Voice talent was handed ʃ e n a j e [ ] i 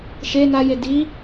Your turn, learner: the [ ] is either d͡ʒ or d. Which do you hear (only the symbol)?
d